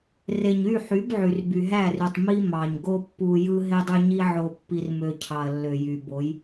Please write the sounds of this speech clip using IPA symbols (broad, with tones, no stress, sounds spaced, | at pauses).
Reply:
r e˨ ɲ y˦˨ ħ y˨˦ b ʕ y˨ r b y˨ ɦ æ˦˨ r y˨ tˤ m i˦ m ɑ˨ ɲ ɡ o˦ pː u˨ j ɯ˦ ɦ e˦ dˤ y˦ ɲ i˦ ʕ o˨ pː i˨ r m ø˨ cʰ ɑ˨ ɐ̯ lː ø˨ j y˨ b o˨˦ j